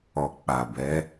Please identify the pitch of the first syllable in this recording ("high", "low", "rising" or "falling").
low